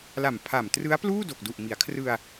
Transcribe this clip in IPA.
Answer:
l a˨˩ m pʰ a˨˩ m t r ɯ˦˥ a̯ p l uː˥˩ d o˨˩ k̚ d u˨˩ ʔ m i˩˦ a̯ kʰ r ɯ˧ a̯

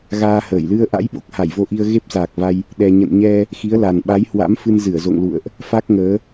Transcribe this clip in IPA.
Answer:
ɣ aː˧ h əː˧˩ j l ɨ˧ ə̯ ʔ a̰˧˥ j ɓ o˦˥ k̚ h a˧˩ j v o˧ ʔ i˧ ə̯ ɣ e˦˥ p̚ s aː˨˩ k̚ v a˧ j | ɗ ɛ˧ ɲ ə̰˧˨ n ɲ ɛ˧ | x i˨˦ ə̯ l a˨˩ n ɓ a˨˦ j h w a̰˧˥ m f ɨ˧ n z ɨ˧˩ ə̯ z o̰˧˨ ŋ l ṵ˧˨ ə̯ ʔ | f a˦˥ k̚ ŋ əː˨˦

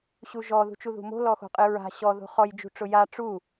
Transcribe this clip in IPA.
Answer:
ɕ u ʒ ɔ ð ṳ t͡ʃ u ð ṳ m o̤ l ɔ x o̤ qʼ ɪ ɹ a̤ ɕ ɔ ð o̤ χ ɔ j d͡ʒ ṳ ʈ͡ʂ ʊ j a ʈ͡ʂ u

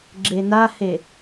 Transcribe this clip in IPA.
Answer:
ɡ͡ǁ e n a h e

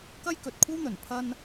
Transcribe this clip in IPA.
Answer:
k ɐ˥ j k ɵ˨ t̚ kʷʰ ɐ˥ w n̪ ɵ˨˩ n pʰ ɐ˧ n

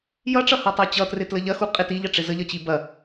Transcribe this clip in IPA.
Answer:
j ʌ ʈ͡ʂ ʌ h a tˤ a t͡ɕ ʌ t r ɪ t l ə ʎ ɐ x u qʼ ɪ t i ʎ ɐ ʈ͡ʂ ɪ z ə ʎ ʌ t͡ɕ i b ɐ

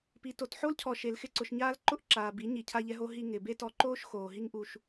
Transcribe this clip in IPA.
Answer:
p i˨ t o˨ t ħ o˦ l cʰ ɔ˨ ʃ e˨ l x ɪ˦˨ ǀ ʊ˨ ʃ ɲ aː˦ l ǃ ʊ˦ ʔ ǁ aː˨ b i˨˦ ɲ i˨˦ cʰ a˦ ʎ ɛ˦ ɦ o˦ ɦ i˧ ŋ ɪː˨ b e˦ t ɔ˧ ǃ oː˦ ʃ x oː˨ ɦ i˧ ŋ ʔ u˨ ʃ

